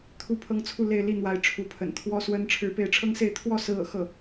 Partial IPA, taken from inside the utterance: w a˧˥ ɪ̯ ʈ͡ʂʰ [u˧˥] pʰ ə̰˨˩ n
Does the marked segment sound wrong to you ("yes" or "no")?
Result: no